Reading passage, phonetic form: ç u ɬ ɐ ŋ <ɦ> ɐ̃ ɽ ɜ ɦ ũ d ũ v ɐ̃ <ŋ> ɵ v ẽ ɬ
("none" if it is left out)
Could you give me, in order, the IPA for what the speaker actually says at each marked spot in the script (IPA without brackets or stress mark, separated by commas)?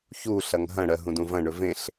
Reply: ɦ, ɳ